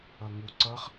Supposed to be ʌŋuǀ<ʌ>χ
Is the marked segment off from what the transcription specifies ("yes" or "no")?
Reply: no